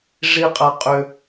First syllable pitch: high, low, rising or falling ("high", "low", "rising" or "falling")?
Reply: high